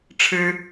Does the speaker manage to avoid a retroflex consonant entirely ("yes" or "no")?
no